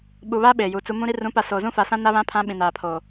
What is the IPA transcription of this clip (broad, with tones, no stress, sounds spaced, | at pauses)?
ɓ u˨ β aː˦ ɓ eː˨ j u˨˦ t͡s u˦ m ũ˦ ɾ i˦ r ũ˨˦ p a˨ s oː˨ z ũ˦ f a˨ s ã˦ n a˦ β ã˦ pʰ ã˦ ɓ ĩ˨ n aː˨ pʰ oː˨